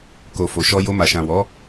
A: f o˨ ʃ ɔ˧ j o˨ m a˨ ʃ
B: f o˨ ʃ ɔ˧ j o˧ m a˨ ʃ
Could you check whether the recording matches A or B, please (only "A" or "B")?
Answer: B